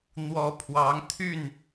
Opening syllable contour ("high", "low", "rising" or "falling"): rising